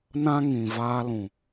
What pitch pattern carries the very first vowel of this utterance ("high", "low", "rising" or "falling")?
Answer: high